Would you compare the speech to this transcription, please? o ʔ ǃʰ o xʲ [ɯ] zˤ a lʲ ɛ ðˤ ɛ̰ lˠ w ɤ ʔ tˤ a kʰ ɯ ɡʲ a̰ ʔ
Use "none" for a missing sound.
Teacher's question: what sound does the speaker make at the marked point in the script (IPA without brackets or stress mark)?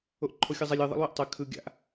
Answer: ɤ